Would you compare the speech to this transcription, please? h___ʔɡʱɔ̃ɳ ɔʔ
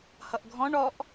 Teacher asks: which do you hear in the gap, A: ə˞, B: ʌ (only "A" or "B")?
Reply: B